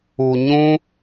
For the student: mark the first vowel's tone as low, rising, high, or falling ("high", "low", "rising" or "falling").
low